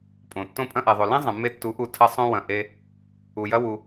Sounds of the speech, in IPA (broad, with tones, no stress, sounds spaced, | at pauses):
pʼ õ˨ tː õ˧ pʼ ɐ̃˧ ʔ ɛ˨ ðˤ o˨ l ẽ˦ zˤ ɐ̃˨ mː e˧ tː u˨˦ ʔ u˧ tʰ ɐ˦ sˤ õ˧ w ɐ̃˧ ʔ e˦ | u˨ j ɐ˦ w u˧